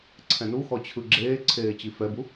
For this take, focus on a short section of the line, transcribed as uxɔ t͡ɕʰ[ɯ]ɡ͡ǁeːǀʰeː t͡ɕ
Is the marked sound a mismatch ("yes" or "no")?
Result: no